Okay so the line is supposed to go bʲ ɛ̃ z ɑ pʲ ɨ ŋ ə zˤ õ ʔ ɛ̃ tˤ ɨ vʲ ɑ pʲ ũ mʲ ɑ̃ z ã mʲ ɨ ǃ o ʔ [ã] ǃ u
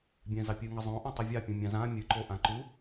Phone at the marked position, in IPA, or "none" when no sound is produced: ã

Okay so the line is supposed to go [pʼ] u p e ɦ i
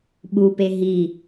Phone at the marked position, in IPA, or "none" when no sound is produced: ɓ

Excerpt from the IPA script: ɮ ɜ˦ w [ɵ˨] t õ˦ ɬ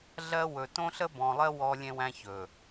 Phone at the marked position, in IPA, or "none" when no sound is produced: ɵ˨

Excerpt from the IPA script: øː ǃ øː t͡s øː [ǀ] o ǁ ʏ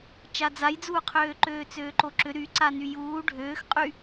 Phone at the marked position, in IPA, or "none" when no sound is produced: ǃ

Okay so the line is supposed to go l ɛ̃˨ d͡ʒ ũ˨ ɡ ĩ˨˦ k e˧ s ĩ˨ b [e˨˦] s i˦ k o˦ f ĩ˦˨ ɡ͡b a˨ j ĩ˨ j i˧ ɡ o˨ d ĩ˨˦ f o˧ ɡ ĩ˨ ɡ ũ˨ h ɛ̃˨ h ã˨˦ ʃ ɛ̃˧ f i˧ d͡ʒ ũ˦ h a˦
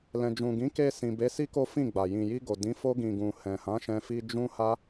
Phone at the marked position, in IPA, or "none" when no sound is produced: e˨˦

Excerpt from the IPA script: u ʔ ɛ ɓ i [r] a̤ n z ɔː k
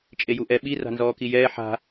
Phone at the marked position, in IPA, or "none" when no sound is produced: r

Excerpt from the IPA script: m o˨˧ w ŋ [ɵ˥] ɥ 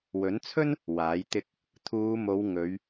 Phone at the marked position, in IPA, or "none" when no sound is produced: ɵ˨˧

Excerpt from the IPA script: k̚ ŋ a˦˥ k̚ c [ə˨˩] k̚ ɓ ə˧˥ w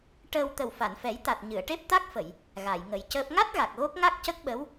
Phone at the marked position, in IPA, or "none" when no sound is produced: ə˦˥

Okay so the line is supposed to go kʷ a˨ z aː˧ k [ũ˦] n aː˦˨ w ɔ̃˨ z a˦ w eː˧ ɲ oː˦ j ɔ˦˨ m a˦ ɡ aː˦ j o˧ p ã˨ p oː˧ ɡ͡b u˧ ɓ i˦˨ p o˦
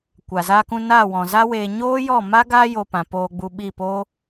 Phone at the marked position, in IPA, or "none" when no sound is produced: ũ˧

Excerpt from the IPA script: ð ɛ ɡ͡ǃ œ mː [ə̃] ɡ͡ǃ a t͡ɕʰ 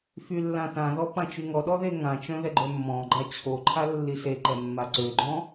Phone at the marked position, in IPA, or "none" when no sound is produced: ɔ̃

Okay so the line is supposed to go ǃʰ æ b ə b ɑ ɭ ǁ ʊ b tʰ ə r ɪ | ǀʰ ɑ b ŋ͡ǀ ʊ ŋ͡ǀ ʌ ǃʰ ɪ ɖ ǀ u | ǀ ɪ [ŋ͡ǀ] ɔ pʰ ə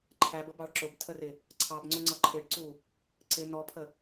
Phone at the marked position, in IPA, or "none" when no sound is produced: n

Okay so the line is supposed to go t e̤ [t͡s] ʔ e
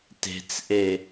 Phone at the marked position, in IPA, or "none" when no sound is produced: t͡s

